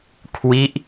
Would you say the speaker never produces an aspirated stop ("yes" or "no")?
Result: no